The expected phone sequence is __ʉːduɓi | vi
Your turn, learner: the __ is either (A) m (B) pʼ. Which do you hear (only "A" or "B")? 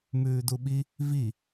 A